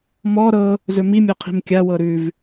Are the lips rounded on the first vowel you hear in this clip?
yes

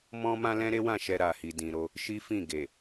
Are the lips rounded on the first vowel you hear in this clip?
yes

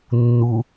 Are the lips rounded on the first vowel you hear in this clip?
yes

